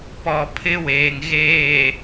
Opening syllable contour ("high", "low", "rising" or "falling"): low